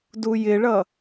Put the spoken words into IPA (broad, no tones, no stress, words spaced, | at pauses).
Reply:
dujɪɭʌ